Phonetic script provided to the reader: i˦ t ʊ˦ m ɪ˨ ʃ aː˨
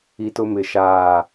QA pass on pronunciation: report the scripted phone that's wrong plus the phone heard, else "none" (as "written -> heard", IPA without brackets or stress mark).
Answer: none